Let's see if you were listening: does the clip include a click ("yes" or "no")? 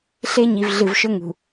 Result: no